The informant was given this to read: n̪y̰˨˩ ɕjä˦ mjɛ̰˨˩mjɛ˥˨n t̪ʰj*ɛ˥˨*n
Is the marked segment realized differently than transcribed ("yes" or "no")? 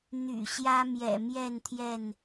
no